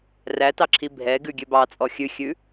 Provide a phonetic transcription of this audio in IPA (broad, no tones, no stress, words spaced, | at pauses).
rætɑǁʰi bʱɛ ɡʉɡʲøbɑt͡sʼɔ xʲʉxʲʉ